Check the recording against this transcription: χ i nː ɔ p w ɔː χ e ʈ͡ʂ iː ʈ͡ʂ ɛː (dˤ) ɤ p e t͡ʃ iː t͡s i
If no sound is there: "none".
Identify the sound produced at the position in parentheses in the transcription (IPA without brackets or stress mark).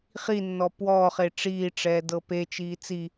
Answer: d